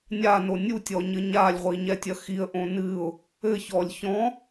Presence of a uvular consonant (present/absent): present